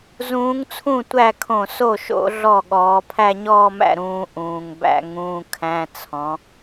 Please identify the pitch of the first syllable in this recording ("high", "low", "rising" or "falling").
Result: rising